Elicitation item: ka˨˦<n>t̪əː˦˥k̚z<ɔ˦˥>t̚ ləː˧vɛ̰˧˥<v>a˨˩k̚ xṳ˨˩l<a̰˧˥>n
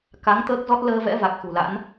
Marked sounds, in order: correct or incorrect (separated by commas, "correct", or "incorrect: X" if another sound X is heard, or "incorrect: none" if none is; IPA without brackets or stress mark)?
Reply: incorrect: ŋ, correct, correct, correct